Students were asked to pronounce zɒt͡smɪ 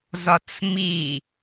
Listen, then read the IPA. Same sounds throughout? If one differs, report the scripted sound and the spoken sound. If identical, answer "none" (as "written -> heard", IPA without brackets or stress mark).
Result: ɪ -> i